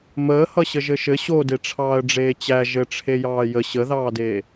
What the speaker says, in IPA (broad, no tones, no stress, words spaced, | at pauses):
məːhʌɕə ʒɘʃɘ ɕodeʈ͡ʂʰɑːə̯ ɖ͡ʐeːt͡ɕæ ʒɘʈ͡ʂʰe jɑːjə ɕəðɑːdeː